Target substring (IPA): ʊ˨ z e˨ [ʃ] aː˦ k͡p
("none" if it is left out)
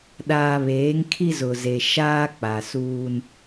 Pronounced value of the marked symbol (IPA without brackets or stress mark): ʃ